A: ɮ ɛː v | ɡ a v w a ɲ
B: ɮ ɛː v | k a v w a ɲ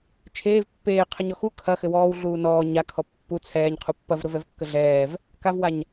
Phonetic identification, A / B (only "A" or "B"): B